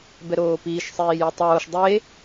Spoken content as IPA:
b ɛ ɾ oː p iː ʃ sˤ iː j i tˤ oː ʃ dˤ e

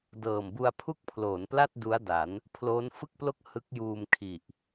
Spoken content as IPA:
d ɤː˨˩ m b u˧ a̯ pʰ u˥˩ k̚ pʰ l oː˩˦ n p l a˥˩ t̚ d u˦˥ a̯ d a˩˦ n | pʰ l oː˦˥ n f ɯ˥˩ k̚ p l o˥˩ k̚ h ɯ˦˥ k̚ j uː˧ m kʰ i˨˩ ʔ

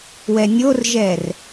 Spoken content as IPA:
w ɛ nʲ o r ʒ ɛ r

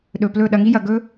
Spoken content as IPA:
ɗ ɵ˨ p l ɵ˦˨ ɗ ɐ˧ ŋ i˦ j ɐ˨ ɡ ɵ˧

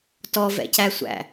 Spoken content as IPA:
t ɔ v ɛ̰ c æ sʷ æ̰

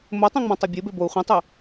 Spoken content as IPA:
m o tˤ ĩ ŋ͡m ã tˤ e bʲ e b e b o u̯ χʷ ĩ tˤ ɛ

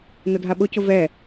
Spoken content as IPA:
n ʊ dʱ a ɓ ʊ c ʊ v ɛ

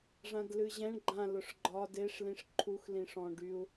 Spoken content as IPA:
ʐ ã d l ɨ ʑ ɛ̃ ɳ ɡ͡ǃ ã l ʊ ʂ ɡ͡ǃ ɒ d e ʂ l ĩ ʂ ǃʰ u x l ĩ ʂ ɔ̃ ɖ y u̯

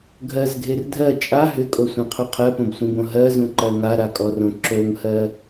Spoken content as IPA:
ɡʱ ɜ z ɡʱ e r dʱ ɜ t͡ʃʼ a ɦ ʏ kʼ o sʷ ĩ qʰ u qʰ ɜ p õ b sʷ ĩ b õ ɦ ɜ z ũ ǃ ɜ ŋ a ɾ a kʼ ɔ r õ ǁ o ŋ h ɜ

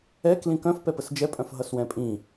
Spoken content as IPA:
ɛ k l ĩ k œ̃ f p ɛ p ə s d͡ʒ ɛ pʼ œ̃ f ɦ ʌ s w ɛ̃ pʼ ĩ

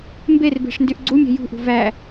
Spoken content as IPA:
m b e r b e̤ ʂ n d y ʔ ɡ͡ǀ u mʲ æ̤ j ṳ ʔ ṳ v æ

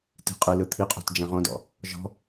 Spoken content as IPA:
t i̤ qʼ ɯ l ɯ t̪ʰ i qʼ o̤ t d͡ʒ ɛ̃ ʁ õ d ɔ̰ | ʒ ɔ̤

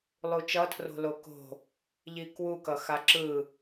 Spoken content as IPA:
lˠ u t͡ʃ ʌ tʰ r o̤ l o k o̤ | ʎ i k w u k ʌ x a ǁ ɯ

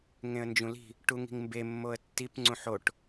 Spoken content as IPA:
ŋ ẽ ə̯ n d͡ʒ ũ l i̤ | ʈ u ŋ i̤ ŋ m b e mː o ə̯ tː i p ŋ͡ǀ ũ ħ o ʈ

